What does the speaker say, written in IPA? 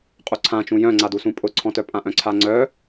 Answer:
qʼ u ǀʰ ã t͡ʃ ũ j œ̃ ŋ͡ǀ a d u s ũ pʼ ʊ ǀʰ ɔ̃ t œ pʼ ã ʔ œ̃ ǀʰ a ŋ͡ǀ œ

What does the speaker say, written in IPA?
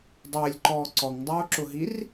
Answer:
dˤ ɪː lʲ ǃ ɔː ǀ ɔ ŋ dˤ oː ǁ ʊ ɦ i r

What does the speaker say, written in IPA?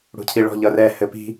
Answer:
ɽ ṳ cʰ i ɭ ɔ̤ ʎ ʌ r ɛ h ɘ p i̤

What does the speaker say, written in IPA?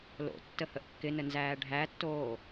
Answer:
l o̰ tː ə h ə ʔ kː ɪ n ə n z æː ɖʱ æ tː oː

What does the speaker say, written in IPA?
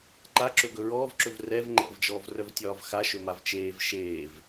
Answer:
ǃ a ǁ ɵ ɡ ɵ ɹ ɔː v ǁ ɵ v r ɛ v ŋ͡ǃ ɛ̰ v d͡ʒ ɔː v r œ v tʲ ɒː v x a ʃ ɵ m a v t͡ʃ eː v ʃ eː v

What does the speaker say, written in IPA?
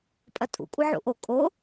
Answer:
pʼ ɐ tʼ ṵ kʷʼ ɐ ʕ ṵ ʔ o kʼ o

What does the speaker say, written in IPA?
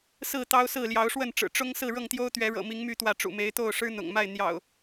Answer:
s ɹ̩˥˨ t̪ ɑ˦ ʊ̯ s ɹ̩˥˨ l j ɑ˨˦ ʊ̯ ʂ w ə˥˨ n ʈ͡ʂ ɻ̩˨˩ ʈ͡ʂ ʊ˦ ŋ s ɹ̩˥˨ ɻ ɤ˥˨ ŋ t̪ j o˦ ʊ̯ t̪ ɥ ɛ˨˦ ɻ ɤ̰˨˩ m i˨˦ ŋ m y˥˨ t̪ w ä˥˨ ʈ͡ʂ ṵ˨˩ m e˨˦ ɪ̯ t̪ o˥˨ ʊ̯ ʂ ɻ̩˦ n̪ ʊ̰˨˩ ŋ m a˥˨ ɪ̯ n̪ j ɑ̰˨˩ ʊ̯

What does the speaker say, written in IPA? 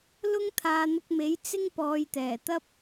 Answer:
l ʊ˥ ŋ t̪ʰ aː˨ n̪ ʊ˧ k̚ m e˨˥ j t͡s ɪ˥ ŋ p ɔː˨˧ j t̪ ɛː˨˩ t̪ ɐ˥ p̚

